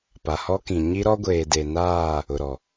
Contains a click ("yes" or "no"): no